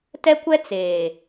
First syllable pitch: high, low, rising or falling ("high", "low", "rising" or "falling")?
high